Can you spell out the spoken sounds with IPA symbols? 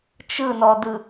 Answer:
t͡ʃ ɯ n ɔ d ɯ

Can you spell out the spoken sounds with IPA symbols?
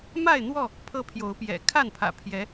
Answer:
m a˥˨ ɪ̯ n̪ w ɔ˥˨ | pʰ ɤ˦ pʰ j o˨˦ ʊ̯ p j ɛ̰˨˩ kʰ a˥˨ n pʰ ä̰˨˩ pʰ j ɛ˨˦

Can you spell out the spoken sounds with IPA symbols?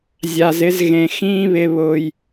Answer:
zʲ a˨ z ɪ˦ z ɣ ẽ˨ x ĩː˦ β ɪ˨ β ʊː˨ j

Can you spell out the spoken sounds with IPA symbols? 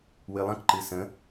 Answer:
w ɨ lˠ ə̃ k ǃ ɨ s ə̃

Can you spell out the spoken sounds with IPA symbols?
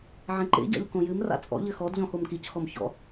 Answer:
ʕ ẽ ǃ ḛ ɟ a̰ ʎ k õ j ɨ m r a̰ t͡sʼ ɔ̰ ʎ ɘ x ɔ d ʎ ɔ̃ x o m k i c x ɔ m ç ɔ̰

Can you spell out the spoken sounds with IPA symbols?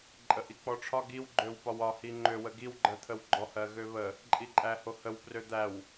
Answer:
ǃʼ ə ʔ i k͡p ɔ ʈ͡ʂʰ ɒ ɡ i w ɡ͡ǃ ø w p ɒ w ɒ h i ŋ͡ǃ ø w ə ɡ i w ɡ͡ǃ ɜ t̪ʰ ə w ɡ͡ǃ ɔ h ɜ ɣ ø β ə | ǃʼ i ǃʼ æ h o h ə w p r ø d̪ æ w

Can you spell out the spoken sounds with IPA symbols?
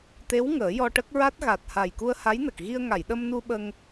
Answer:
t̪ e˧˥ w ŋ əː˨˩˦ j ɔ˧ ʈ ə˦˥ k̚ ɹ a˦˥ t̚ ɣ a˨˩ t̚ h a˨˩ j k u˧ ə̯ h a˧˥ j n ə˨˩ k̚ ɣ i˧ ə̯ ŋ a˨˩˨ j ɗ ə˧ m n u˧ ɓ ə˧ ŋ

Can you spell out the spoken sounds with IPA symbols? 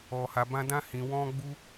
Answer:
ɔ˨ h a˨ b ã˧ d ã˧ h ĩ˨ w ɔ̃˧ ɡ͡b u˧

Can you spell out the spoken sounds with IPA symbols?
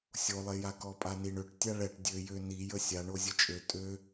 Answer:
sʲ o lˠ e j a k ɔ pʼ a n i ɳ ø ʈ tʲ a ɭ ɛ ʈ dʲ ø j ø n i j ə sʲ a ɳ o zʲ ə t͡ʃʼ ø tʼ ø

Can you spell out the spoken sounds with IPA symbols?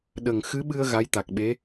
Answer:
ɗ ə˨˩ ŋ x ɨ˧˥ ɓ ɨ˧ ə̯ ɣ a˧˥ j t̪ a˨˩ k̚ ɓ e˧˥

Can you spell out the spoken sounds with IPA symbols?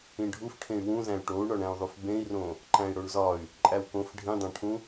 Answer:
ĩ ɖʱ u f ʈʰ ẽ y̯ w ũ z æ̃ y̯ ʈ o u̯ ɳ ɒ ɳ æ̃ u̯ ðˤ u f b ẽ i̯ r õ | ǃ æ̃ i̯ ɽ o ɳ z ɒ y̯ | ǃʼ æ w k õ f ɖʱ ĩ dˤ æ̃ ʈʰ ũ

